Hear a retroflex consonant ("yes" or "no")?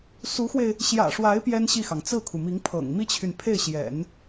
yes